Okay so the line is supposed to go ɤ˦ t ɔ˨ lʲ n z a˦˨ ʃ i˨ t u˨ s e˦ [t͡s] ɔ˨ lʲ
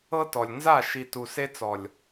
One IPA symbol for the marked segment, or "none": t͡s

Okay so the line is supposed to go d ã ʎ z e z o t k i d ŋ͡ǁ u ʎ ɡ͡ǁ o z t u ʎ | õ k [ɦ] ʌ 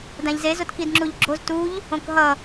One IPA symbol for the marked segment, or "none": ɦ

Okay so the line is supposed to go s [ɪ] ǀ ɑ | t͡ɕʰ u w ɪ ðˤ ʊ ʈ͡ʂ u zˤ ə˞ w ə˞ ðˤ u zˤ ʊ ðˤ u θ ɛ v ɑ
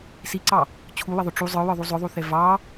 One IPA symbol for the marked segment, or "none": i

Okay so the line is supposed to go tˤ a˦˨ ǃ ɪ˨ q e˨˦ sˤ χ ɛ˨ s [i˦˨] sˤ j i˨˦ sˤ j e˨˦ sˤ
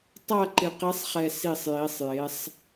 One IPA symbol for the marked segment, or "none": i˦˨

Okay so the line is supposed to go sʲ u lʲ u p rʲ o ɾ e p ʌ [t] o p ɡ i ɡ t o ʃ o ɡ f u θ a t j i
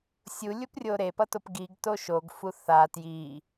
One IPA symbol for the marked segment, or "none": t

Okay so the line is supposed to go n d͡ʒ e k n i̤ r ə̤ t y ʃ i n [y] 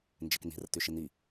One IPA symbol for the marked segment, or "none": i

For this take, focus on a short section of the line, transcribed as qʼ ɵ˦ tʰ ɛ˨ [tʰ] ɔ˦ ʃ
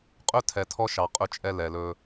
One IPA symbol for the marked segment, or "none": tʰ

